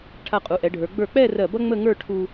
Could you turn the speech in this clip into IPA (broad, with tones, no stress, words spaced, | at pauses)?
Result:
ʈʰa˧qʼu˩˧ʔɛ˩˧ɖʱə˞˩˧ ɡ͡bə˞˧˩k͡pɛ˥˧ rɜ˧˩bʌ˥ ŋ͡mə˥˧ŋə˞˥˧ ʈʰu˧